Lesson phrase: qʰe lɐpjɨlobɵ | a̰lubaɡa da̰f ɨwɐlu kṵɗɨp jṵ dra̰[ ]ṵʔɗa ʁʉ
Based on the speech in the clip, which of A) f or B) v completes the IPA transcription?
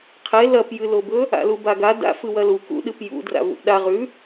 B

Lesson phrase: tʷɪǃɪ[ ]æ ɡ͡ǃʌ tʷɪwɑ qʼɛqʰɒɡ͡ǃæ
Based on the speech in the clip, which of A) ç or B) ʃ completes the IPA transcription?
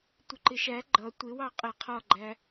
B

